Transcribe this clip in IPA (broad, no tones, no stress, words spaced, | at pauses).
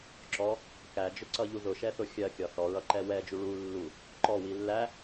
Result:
ǁɔ | kæd͡ʒʊǀʌʎu ðʊʃɛθʊ xʲɜkʲɒ θɔɹʌǃɛ wɛd͡ʒu ɭu lːu | ǃɔwi lːæ